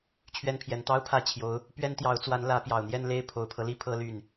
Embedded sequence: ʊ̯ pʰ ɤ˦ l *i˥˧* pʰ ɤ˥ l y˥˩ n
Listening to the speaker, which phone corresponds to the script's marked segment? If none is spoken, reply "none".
i˧˥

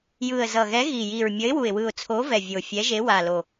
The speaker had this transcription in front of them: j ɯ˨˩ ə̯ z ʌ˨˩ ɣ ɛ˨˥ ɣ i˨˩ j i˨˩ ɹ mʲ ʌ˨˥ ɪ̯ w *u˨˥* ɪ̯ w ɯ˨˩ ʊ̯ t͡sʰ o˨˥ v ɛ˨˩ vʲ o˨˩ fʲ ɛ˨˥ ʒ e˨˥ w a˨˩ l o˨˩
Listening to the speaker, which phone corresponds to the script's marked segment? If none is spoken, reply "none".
u˨˩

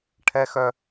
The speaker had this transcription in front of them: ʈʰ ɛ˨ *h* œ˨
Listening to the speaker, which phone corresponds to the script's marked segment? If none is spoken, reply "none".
x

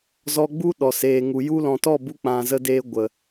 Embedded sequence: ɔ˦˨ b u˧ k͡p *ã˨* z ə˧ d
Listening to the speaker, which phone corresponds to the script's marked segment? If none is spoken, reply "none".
ã˨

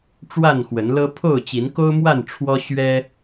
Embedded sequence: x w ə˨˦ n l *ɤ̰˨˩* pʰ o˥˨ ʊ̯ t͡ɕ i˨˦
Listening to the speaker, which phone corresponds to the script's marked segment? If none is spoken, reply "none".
ɤ˦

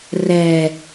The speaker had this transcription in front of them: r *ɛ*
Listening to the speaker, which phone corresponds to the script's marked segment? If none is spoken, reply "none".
ɛ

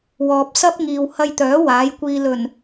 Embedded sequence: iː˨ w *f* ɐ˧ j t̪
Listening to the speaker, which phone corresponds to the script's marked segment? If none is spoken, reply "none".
h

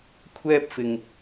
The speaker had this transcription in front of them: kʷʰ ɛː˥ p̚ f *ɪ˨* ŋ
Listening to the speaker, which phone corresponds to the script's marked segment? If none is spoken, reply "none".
ɪ˨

